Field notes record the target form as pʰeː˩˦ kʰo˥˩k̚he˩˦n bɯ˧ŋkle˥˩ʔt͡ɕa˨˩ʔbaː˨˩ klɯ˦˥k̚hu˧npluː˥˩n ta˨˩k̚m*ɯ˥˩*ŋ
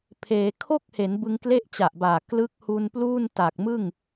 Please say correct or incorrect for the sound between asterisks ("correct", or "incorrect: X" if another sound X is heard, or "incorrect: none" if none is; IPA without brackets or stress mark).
correct